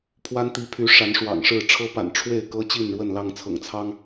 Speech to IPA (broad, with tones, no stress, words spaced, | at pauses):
pʰwa˦nt̪i˨˦pʰy˨˦ ʂa˨˦nʂwɑ̰˨˩ŋʂɻ̩˥˨ ʈ͡ʂʰɤ˦pa̰˨˩n ʈ͡ʂʰwe˥˨ɪ̯ kɤ˦t͡ɕi˥˨nɻwə˥˨n lɑ˥˨ŋt͡sʰɤ̰˨˩ŋt͡sʰɑ˦ŋ